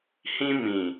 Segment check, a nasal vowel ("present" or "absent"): present